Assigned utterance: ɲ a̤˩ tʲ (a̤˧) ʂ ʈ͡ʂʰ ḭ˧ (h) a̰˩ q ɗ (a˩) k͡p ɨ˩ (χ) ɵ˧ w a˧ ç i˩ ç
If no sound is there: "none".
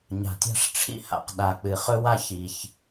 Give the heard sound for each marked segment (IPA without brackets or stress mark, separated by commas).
a̤˧, h, a˩, χ